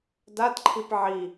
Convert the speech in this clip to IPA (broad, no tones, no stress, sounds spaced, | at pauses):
d a t ǃʰ i p ʕ i